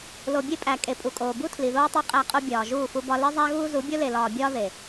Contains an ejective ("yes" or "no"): yes